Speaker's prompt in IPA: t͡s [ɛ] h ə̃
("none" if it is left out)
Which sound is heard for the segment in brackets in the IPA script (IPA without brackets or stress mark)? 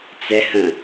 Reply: ɛ